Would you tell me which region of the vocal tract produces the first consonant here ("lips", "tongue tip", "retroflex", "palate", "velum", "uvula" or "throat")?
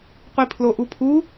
uvula